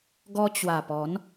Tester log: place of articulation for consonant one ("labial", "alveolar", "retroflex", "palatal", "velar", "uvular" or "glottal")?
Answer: velar